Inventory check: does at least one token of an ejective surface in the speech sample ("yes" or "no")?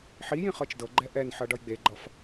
no